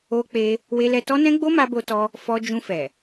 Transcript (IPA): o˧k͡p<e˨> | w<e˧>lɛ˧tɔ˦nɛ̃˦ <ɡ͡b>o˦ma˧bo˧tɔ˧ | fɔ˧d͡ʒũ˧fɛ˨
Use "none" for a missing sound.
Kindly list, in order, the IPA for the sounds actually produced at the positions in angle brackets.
e˧, e˧, ɡ͡b

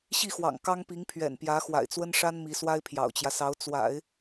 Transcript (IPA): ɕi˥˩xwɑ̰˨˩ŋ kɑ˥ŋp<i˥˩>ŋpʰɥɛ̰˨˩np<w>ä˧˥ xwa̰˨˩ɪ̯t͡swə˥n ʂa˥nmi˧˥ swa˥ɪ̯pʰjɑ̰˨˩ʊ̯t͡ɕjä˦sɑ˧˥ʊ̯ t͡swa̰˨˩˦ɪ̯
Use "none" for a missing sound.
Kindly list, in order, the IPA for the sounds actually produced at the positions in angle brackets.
i˧˥, j

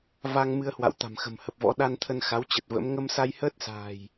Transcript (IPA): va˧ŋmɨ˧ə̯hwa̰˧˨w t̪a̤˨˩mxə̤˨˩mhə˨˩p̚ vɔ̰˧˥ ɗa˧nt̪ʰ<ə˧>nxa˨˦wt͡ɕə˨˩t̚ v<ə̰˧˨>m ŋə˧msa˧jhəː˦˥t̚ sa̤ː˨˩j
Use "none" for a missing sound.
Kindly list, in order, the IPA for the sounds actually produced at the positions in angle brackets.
ə˧, ə̰˧˥

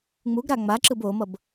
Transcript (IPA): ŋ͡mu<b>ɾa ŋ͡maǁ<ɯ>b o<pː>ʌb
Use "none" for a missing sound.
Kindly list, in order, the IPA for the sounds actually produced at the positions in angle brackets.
ɡ, ɯ, m

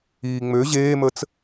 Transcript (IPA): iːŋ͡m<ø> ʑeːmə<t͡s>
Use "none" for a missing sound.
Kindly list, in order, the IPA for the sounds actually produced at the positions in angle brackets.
ø, t͡s

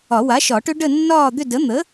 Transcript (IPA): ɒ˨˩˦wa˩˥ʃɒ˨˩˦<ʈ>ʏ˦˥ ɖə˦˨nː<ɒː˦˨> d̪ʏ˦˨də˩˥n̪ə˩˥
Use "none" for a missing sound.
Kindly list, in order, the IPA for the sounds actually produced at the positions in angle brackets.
ʈ, ɒː˦˨

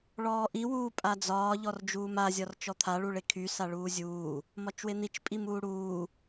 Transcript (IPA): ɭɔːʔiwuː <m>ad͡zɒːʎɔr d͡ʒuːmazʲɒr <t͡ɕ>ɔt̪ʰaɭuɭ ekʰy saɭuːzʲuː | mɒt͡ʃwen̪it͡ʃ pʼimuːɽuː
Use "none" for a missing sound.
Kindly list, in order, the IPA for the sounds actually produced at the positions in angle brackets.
pʼ, t͡ʃ

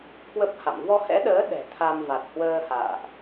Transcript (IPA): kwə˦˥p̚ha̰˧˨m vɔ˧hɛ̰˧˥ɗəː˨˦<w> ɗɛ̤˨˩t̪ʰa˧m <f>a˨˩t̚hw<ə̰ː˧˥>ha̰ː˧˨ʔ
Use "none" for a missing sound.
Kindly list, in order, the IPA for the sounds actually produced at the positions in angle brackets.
none, v, əː˧

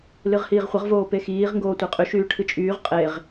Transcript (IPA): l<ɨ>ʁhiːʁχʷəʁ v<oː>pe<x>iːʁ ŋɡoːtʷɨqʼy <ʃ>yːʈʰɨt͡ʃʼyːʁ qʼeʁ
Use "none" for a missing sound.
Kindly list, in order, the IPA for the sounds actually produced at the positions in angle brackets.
ɨ, oː, x, ʃ

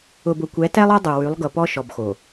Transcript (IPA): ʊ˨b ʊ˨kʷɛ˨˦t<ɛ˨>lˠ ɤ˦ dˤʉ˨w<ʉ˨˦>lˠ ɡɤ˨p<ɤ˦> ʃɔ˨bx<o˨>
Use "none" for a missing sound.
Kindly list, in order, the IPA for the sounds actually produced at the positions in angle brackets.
ɛ˦, ʉ˨˦, ɔ˦, o˨

